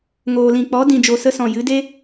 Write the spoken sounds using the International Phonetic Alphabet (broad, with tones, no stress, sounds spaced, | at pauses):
ŋ oː˨ l ĩ˨ k͡p ɔ˨˦ d ĩ˧ d͡ʒ o˧ s ə˧ s ɔ̃˨ j ɨ˨˦ d e˦